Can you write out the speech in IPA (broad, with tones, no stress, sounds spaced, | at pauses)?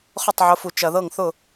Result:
χ ʊ˥˩ tˤ ʕ ʊ˨˦ f u˨ t͡ʃ ɐ˨ ð ɤ˥˩ ŋ θ ʊ˥˩